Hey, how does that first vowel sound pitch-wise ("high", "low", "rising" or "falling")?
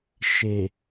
low